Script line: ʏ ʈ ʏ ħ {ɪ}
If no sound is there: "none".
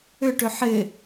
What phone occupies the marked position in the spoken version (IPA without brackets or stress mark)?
ɪ